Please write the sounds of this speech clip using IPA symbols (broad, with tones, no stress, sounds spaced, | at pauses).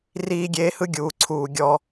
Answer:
r iː˦ ɡʲ eː˦ h ɯ˦ ɡʲ uː˨ ǀʰ uː˨ ɡʲ ɔ˦